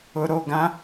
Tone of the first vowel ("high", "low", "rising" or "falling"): low